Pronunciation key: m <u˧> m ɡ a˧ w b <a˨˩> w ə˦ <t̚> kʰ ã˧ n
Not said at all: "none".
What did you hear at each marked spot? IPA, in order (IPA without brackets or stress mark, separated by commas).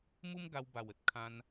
u˦, a˨˩, t̚